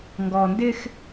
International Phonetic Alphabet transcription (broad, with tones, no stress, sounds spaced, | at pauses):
ŋ ɡ ɔ˨ n d ɪ˦ x